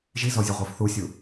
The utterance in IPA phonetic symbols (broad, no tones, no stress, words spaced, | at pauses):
ʒizɔzʲəʁʷə˞f θusʲu